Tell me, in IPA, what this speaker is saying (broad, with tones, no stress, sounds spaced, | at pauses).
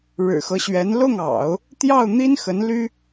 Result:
ɻ ɻ̩˨˩ x ɤ˦ ɕ ɥ ɛ˧˥ n l ʊ˥˩ ŋ ɑ̰˨˩˦ ʊ̯ | t̪ j ɑ˥˩ ʊ̯ n̪ i˥ n x ə˧˥ n l y˥